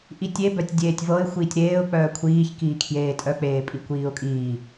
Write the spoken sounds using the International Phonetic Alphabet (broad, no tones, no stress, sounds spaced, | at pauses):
ʔ i tʲ e b œ tʲ dʲ eː tʲ v ɤ ɪ̯ xʷ iː tʲ ɾ eː ʊ̯ k͡p œː kʷʰ iː ç k iː kʰ j eː tʼ œ k͡p eː pʼ i kʷ iː ʊ̯ kʼ iː